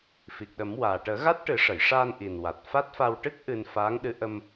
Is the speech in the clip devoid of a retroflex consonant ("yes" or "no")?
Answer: no